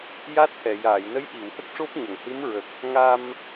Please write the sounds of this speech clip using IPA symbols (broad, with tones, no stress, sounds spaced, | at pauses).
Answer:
j a˦˥ t̚ h ɛ˨˩˨ j aː˨˩˨ j n ə˧˥ j ʔ i˨˩˨ w h ə˦˥ k̚ ʂ o˦˥ p̚ ɲ ə˨˩˨ ŋ h ɨ˧˥ m ɹ ə˨˩ k̚ | ŋ a˧ m